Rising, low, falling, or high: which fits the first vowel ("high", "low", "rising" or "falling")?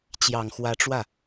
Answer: low